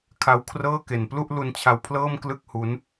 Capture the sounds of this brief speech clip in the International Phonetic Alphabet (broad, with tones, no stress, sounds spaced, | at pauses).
kʰ a˦˥ w kʰ r ɤː˥˩ k e˨˩ n p l u˥˩ ʔ l u˧ n t͡ɕʰ a˧ w pʰ l ɤː˥˩ m k l ɯ˥˩ k̚ h u˦˥ n